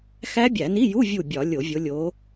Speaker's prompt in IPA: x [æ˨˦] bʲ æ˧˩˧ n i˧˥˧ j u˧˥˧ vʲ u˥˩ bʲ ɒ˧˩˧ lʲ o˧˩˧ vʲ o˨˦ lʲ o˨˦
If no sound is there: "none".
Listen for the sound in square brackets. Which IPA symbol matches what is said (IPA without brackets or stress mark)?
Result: æ˦˥